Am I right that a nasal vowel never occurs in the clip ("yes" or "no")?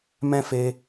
no